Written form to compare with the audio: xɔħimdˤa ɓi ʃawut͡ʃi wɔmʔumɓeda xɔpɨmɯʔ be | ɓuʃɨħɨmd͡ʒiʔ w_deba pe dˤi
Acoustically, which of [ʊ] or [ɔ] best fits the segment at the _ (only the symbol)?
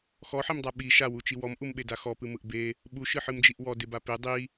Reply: ɔ